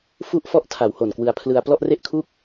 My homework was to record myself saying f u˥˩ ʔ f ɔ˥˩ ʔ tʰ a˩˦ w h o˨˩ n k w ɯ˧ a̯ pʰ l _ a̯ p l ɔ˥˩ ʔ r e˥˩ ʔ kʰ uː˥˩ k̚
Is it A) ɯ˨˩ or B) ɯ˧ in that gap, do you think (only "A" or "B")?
B